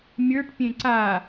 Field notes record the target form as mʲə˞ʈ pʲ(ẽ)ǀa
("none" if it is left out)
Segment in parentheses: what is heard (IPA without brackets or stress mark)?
ẽ